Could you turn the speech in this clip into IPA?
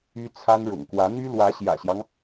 y˥ t͡sʰ a˥ n ɻ ʊ̰˨˩ ŋ k w ä˧˥ n̪ y˥ l w ä˧˥ ɕ j ä̰˨˩ ɕ j ɑ˦ ŋ

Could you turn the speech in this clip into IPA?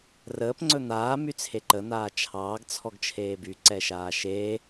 r əː p ŋ͡ǀ ɵ n̪ aː m y t͡sʰ e ǃ ə n̪ aː t͡ʃʰ ɑː ɡ t͡sʰ ɔ ɡ t͡ʃʰ eː b y ǀ ɛ ʃ aː ʃ e

